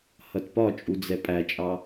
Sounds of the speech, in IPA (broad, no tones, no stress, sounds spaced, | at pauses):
h ʌ t p ɒ t͡ʃʼ u d͡z ɛ pʼ æ t͡ʃʼ ɑ